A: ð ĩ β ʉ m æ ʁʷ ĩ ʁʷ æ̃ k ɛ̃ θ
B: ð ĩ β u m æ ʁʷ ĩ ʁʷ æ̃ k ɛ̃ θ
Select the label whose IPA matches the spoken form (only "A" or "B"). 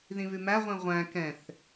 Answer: A